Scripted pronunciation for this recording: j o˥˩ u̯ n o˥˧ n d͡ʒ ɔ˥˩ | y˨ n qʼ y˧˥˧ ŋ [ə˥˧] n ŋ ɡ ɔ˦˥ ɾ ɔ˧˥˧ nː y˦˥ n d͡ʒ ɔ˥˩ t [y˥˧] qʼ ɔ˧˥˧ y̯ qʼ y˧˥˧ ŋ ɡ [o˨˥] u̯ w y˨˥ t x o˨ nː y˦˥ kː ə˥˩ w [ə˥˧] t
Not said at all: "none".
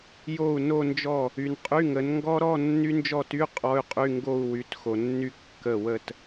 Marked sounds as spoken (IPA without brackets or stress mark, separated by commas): ə˨˥, y˧˥˧, o˥˧, ə˥˧